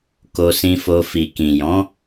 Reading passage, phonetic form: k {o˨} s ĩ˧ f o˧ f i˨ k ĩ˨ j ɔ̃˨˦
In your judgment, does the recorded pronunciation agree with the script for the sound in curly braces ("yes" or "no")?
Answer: no